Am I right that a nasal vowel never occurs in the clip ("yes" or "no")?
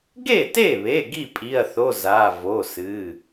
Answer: yes